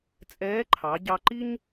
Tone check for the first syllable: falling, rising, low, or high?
rising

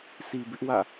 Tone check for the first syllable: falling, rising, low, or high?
low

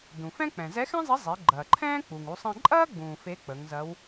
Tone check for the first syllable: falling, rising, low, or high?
low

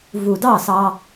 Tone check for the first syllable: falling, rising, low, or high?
low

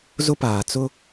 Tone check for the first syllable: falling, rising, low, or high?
high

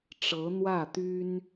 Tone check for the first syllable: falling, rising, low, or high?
rising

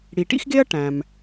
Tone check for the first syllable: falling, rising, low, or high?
low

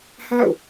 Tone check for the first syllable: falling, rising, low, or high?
falling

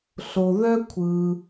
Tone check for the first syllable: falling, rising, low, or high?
low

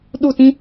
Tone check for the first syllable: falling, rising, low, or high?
falling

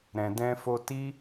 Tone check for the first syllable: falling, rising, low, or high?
low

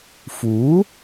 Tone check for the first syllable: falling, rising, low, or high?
rising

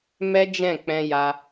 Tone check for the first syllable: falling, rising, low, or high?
high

